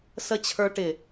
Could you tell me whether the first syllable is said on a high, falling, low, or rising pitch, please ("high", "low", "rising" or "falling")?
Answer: low